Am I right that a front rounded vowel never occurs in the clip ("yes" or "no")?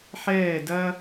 yes